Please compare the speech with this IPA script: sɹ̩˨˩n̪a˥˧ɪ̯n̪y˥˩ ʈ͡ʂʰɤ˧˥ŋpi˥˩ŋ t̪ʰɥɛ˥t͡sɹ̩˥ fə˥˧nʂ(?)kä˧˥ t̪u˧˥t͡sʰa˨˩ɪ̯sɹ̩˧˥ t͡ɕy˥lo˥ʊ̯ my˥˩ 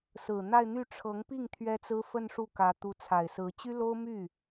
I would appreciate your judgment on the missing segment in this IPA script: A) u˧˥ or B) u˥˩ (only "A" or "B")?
B